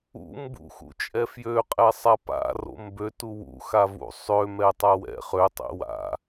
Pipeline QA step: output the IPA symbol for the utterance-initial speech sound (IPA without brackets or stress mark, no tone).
ṵ